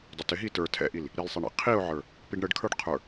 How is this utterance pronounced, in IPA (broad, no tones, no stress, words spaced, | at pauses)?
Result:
dˤɪtɪɦi tə˞ tʰɛ̰ʔil | ɾilsˤɛ ɳḭ qʰiʊ̯ʕə˞ | piɖɳəɖkʰə˞ɖ qʰə˞